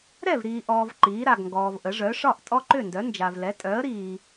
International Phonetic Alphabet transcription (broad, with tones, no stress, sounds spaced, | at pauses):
ɾ ɛ˥˩ v ɾ iː˨ ʔ ɔː˨ v ǃ iː˩˥ ɾ a˨ ɡ ŋ ɡ ɔː˨ v ʔ ə˩˥ ʐ œ˩˥ ʂ ɒ˥˩ ʔ tʼ ɔ˦ ǃ ʏ˥˩ n d œ˩˥ n d͡ʒ a˨ v l ɛ˩˥ tʼ œː˩˥ ə̯ ɾ iː˨